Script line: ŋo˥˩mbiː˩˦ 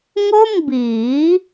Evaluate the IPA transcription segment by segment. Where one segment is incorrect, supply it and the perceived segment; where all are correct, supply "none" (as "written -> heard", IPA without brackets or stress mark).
none